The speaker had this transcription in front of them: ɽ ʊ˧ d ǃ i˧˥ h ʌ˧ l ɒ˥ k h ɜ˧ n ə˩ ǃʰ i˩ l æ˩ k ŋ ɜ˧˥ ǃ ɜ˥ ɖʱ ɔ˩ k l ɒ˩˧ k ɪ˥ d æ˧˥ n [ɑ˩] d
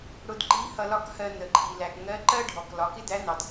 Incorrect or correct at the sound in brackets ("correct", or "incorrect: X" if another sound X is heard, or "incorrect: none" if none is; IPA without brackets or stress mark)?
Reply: correct